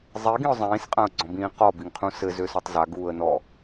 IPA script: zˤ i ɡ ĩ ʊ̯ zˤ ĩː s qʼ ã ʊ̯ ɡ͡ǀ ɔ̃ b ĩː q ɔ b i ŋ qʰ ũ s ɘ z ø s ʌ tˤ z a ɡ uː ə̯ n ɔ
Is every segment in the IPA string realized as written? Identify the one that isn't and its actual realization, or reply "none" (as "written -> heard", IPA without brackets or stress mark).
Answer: none